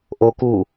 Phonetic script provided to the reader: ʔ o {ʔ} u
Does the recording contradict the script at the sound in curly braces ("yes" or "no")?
yes